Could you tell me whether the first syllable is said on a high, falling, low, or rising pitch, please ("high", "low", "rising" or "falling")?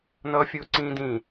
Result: high